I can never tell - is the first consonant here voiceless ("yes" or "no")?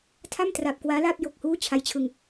yes